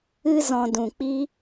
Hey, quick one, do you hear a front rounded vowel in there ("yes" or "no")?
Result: no